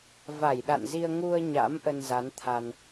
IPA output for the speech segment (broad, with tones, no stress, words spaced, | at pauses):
va˧˩jɗa̰˧˨nzi˧ə̯ ŋu˧ə̯ɲa̰˧˥m ʔə˧nza˨˦nt̪ʰa˧n